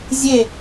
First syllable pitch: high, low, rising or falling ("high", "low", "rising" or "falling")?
falling